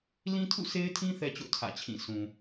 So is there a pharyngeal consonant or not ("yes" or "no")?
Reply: no